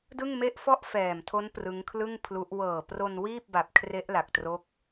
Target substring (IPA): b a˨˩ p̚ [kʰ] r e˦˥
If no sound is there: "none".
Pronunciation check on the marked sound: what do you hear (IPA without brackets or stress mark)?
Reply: kʰ